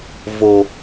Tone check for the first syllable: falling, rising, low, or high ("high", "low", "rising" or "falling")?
low